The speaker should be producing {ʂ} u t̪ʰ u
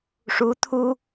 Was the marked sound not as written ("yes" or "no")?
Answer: no